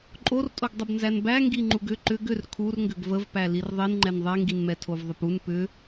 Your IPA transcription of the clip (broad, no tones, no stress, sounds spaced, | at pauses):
ǃʼ o r tʼ o ɡ dˤ ə b n z æ n b æ ŋ ɡ i ŋ͡ǃ u ɡ ʏ ǃ ʏ ɡ ʏ r kʰ u r ŋ ɡ ʏ ɡ v ə v p æ l i r ðˤ i n ŋ͡ǃ ɛ n ðˤ ɛ ŋ ɡ i n m ɛ tʰ o v ðˤ ə p u n p ʏ